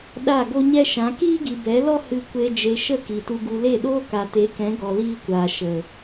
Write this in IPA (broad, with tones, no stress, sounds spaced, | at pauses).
ɗ a˦˨ ɡ o˦ ɲ ɛ˦ ʃ ã˨˦ k iː˦ ɡ i˨ b ɛ˨˦ l ɔ˦ h ɨ˧ kʷ e˧ d͡ʒ e˧ ʃ ə˦˨ k i˨ t u˧ ɡ u˧ l e˦˨ ɗ oː˦ k a˨ t e˨˦ k ɛ̃˨˦ ɡ ɔ˧ l iː˦ kʷ aː˨ ʃ ə˨